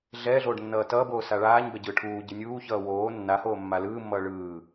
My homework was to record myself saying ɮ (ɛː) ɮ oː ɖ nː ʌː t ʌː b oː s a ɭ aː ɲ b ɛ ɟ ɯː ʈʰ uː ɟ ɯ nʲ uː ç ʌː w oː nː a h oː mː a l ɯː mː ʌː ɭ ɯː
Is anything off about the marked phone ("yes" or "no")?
no